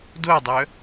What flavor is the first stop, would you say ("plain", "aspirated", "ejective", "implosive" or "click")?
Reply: plain